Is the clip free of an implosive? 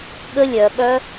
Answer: no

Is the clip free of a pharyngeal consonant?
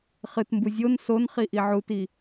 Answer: no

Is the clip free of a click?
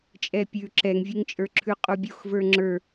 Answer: no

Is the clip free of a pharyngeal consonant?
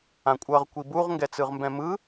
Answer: yes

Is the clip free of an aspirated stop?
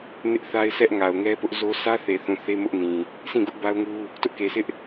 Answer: yes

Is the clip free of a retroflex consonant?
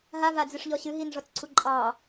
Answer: no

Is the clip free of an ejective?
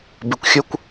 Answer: yes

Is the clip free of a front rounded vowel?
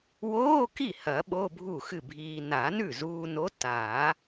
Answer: yes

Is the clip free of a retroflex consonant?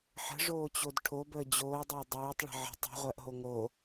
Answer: no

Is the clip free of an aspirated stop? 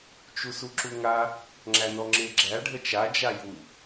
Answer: yes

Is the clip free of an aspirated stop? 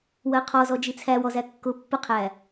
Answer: no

